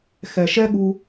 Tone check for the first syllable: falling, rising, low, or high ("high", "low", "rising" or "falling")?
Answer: low